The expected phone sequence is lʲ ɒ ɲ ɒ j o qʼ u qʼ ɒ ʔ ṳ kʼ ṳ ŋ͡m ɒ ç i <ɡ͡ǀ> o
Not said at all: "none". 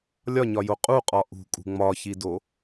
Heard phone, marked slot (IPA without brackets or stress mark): d